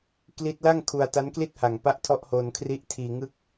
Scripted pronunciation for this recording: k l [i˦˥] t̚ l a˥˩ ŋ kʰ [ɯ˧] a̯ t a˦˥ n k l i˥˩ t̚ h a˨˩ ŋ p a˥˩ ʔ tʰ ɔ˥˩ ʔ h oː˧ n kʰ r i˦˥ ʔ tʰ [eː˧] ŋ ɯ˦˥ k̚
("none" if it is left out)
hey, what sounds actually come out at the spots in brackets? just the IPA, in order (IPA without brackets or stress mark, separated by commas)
i˦˥, u˧, iː˧